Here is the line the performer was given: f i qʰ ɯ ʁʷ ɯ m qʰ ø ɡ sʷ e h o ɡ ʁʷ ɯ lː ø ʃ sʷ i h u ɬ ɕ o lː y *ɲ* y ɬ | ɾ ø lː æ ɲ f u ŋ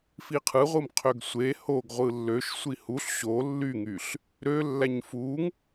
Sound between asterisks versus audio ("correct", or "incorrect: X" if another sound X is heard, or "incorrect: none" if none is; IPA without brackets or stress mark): incorrect: ŋ